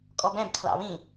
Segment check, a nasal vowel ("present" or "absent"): present